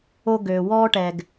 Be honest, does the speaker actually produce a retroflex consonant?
yes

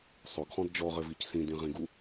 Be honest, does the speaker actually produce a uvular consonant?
yes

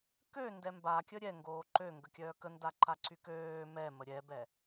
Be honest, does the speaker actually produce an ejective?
no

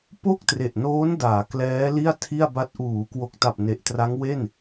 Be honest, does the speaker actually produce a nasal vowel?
no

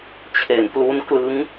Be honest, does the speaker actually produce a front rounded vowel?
no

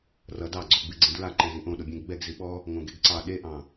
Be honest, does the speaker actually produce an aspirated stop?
no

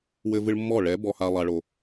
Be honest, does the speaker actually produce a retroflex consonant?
yes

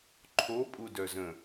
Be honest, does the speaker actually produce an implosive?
no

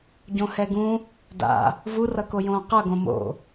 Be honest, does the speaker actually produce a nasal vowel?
yes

